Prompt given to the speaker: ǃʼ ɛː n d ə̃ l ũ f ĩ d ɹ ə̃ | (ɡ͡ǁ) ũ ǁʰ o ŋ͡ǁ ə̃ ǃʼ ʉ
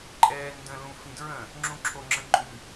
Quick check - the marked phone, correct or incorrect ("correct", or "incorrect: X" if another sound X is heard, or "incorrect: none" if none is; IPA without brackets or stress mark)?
incorrect: ŋ͡ǁ